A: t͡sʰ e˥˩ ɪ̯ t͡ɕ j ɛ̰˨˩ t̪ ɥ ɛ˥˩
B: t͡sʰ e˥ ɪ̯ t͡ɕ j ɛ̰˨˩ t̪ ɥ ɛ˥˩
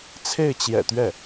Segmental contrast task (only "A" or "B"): A